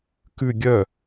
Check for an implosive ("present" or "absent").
absent